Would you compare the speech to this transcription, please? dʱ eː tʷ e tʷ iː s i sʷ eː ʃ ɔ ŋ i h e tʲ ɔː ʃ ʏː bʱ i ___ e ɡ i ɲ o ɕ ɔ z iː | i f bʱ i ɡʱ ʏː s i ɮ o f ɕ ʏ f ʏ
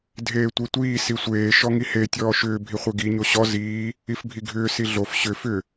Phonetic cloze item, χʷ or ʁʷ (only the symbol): χʷ